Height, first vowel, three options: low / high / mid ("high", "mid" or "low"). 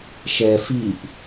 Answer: mid